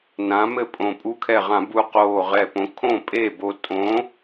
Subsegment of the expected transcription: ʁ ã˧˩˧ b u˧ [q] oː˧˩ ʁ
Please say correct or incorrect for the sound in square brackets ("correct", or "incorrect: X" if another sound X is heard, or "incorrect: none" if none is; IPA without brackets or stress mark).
correct